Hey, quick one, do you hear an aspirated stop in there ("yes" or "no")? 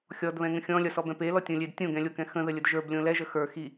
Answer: no